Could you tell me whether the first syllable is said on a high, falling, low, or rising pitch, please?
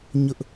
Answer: high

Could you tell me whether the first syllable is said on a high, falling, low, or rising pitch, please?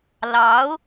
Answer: rising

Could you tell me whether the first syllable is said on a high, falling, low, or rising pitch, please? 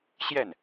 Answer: falling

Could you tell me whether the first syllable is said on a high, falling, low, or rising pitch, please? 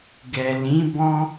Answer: low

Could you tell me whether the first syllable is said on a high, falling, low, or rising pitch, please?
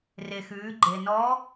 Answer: low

